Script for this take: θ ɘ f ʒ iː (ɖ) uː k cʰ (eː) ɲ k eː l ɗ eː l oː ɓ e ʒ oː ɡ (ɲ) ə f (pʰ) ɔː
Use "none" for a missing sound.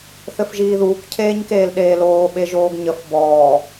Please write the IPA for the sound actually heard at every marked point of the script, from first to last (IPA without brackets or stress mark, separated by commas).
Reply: ð, eː, ɲ, b